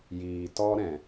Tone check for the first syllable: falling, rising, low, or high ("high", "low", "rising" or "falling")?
low